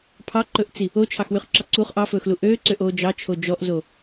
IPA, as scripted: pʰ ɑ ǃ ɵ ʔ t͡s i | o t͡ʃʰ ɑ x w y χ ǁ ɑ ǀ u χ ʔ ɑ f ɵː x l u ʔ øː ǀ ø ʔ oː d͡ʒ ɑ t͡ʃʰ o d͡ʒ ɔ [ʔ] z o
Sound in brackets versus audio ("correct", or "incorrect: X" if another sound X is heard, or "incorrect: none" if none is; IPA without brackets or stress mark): correct